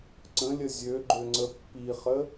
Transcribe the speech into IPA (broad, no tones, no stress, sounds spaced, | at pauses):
ǀ ə̃ lʲ ə zʲ ø ɡ͡ǃ ø ŋ͡ǀ ə pː i χ ə